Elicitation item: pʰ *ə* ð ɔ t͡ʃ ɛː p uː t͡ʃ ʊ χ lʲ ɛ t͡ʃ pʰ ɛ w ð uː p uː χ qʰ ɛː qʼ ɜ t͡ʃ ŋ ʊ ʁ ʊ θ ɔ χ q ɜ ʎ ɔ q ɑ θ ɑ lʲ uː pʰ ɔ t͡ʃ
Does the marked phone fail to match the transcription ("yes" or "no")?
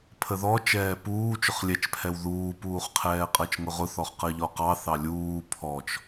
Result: no